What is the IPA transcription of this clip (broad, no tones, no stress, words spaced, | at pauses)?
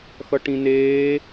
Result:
xʌʈĩneː